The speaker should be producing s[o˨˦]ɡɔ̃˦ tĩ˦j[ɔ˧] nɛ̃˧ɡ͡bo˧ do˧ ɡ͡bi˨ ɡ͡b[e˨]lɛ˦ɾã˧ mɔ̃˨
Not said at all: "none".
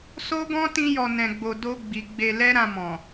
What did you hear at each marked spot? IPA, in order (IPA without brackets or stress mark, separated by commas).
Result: o˦, ɔ˧, e˧